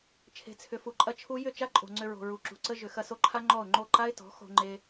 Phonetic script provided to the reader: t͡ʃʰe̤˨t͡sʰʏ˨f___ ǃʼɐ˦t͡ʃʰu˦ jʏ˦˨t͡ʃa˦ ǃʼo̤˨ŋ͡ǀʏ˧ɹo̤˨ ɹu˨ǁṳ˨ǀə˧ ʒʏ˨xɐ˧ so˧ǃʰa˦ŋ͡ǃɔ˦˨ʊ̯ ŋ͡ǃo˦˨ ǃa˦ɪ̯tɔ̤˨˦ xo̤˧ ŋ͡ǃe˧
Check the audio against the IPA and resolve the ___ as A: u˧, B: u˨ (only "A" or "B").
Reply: B